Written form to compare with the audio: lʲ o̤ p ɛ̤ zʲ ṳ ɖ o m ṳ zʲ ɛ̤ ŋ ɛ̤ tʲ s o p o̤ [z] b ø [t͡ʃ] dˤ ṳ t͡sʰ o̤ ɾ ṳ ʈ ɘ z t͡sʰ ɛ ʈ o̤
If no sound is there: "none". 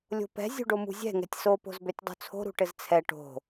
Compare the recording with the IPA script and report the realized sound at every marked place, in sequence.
z, tʲ

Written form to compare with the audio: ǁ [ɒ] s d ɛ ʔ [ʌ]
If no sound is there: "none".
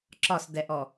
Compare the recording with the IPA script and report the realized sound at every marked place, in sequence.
ɒ, ɔ

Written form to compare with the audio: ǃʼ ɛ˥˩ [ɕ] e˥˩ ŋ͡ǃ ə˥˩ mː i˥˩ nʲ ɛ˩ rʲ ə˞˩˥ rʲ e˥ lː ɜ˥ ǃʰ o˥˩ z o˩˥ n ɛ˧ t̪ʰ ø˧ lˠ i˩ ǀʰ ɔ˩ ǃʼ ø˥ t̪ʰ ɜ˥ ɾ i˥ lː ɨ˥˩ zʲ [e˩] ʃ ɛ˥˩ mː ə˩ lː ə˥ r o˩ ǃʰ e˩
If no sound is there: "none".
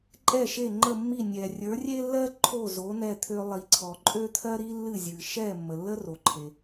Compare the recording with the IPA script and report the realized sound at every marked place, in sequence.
ʃ, ɨ˩

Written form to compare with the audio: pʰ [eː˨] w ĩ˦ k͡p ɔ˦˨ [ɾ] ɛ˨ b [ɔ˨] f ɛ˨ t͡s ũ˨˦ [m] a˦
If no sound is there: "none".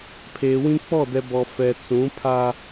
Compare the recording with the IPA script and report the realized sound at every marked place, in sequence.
eː˨, d, ɔ˨, pʰ

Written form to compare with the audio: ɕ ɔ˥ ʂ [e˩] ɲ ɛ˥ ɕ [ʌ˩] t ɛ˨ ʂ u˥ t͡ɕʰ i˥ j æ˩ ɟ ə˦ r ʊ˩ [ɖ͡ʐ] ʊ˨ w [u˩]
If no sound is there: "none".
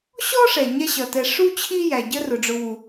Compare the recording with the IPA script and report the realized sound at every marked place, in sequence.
ɛ˩, ʌ˩, ɖ͡ʐ, u˩

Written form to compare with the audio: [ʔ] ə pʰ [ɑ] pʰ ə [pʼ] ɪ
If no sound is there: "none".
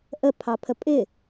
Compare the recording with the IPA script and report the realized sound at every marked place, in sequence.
ʔ, ɑ, pʼ

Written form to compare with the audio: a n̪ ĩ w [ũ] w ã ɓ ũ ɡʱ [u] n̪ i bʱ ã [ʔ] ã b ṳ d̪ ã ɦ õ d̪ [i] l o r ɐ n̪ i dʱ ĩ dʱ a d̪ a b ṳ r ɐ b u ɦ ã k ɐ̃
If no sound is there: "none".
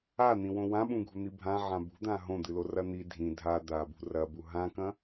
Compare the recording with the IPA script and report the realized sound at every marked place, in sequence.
õ, u, ʕ, ɨ

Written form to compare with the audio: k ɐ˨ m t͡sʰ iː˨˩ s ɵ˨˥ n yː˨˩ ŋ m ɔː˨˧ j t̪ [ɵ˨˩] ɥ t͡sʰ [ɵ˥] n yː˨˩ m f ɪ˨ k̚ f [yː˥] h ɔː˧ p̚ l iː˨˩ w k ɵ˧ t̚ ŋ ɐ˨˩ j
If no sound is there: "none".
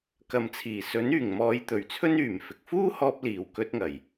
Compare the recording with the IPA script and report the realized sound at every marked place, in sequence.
ɵ˨˩, ɵ˥, uː˥

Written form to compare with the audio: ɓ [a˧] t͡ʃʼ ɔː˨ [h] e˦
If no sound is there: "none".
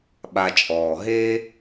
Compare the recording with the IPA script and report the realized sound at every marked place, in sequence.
a˧, ɦ

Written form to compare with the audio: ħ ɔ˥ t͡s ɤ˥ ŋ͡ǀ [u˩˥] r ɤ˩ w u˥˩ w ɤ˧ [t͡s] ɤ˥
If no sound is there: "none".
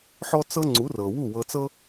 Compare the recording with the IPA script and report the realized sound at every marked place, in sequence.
u˩˥, t͡s

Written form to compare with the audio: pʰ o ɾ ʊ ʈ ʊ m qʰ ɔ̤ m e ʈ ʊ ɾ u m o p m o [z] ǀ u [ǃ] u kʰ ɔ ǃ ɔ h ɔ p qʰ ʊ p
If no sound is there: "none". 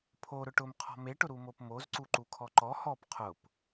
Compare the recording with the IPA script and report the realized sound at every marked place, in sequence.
z, ǃ

